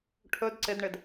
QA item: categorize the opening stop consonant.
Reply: aspirated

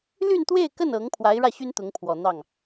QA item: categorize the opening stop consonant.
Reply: plain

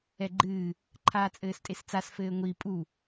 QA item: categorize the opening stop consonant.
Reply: click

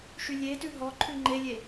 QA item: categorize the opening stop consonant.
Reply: plain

